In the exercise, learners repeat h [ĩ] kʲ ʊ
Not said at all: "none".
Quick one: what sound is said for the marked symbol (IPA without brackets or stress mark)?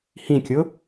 ĩ